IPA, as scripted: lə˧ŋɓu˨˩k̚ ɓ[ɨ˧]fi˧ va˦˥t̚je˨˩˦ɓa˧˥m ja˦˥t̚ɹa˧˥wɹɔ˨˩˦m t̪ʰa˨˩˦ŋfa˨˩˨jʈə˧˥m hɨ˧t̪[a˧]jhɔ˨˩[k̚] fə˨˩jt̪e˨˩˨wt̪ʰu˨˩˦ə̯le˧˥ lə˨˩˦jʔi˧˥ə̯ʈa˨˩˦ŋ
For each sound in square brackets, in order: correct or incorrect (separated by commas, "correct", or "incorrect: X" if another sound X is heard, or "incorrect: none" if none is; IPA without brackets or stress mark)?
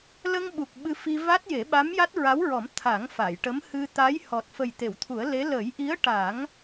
correct, incorrect: a˧˥, incorrect: t̚